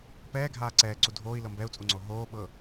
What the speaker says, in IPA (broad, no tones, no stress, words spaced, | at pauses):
pɛːɡʱaː ǀɛːǀu dʱoːi̯lɤ mbɛu̯t͡sʼuŋ͡ǀo ɦoːɓɤ